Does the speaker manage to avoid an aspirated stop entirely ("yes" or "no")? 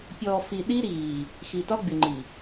yes